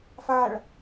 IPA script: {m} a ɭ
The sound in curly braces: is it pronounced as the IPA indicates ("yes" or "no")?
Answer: no